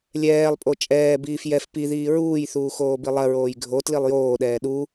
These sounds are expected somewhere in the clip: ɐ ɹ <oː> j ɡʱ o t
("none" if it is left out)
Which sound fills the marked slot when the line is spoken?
oː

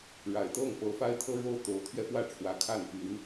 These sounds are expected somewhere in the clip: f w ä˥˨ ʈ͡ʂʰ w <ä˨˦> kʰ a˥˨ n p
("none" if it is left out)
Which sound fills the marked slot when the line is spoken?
ä˨˦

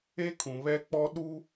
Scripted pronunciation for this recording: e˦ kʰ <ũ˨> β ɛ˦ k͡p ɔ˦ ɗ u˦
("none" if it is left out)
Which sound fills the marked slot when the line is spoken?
ũ˨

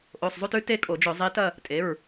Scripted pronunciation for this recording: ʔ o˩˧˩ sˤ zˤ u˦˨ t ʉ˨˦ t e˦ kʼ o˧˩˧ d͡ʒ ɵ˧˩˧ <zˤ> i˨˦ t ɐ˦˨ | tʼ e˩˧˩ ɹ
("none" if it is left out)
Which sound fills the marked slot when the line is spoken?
zˤ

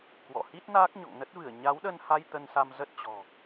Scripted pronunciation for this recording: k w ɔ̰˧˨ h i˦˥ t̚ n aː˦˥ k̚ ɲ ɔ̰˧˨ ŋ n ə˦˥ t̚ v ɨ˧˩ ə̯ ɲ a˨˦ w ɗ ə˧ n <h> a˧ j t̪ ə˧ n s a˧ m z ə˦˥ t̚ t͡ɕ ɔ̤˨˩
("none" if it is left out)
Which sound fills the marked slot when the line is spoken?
h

